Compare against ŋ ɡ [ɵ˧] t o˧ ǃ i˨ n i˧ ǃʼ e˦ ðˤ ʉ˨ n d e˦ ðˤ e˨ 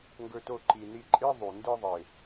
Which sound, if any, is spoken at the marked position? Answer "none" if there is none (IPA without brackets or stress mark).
ɵ˧